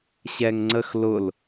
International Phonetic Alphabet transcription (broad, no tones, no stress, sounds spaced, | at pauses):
ɕ ɛ ŋ ŋ͡ǀ ə x l ʊ l